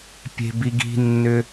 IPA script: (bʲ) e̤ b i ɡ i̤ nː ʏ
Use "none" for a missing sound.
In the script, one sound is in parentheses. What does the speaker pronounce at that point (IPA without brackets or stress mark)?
pʲ